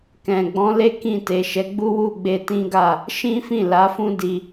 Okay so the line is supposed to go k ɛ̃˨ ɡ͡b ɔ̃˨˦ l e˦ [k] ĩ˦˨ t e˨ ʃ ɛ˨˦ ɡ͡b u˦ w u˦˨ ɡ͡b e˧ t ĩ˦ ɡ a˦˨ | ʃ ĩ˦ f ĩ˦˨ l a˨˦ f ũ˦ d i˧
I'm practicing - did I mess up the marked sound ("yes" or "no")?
no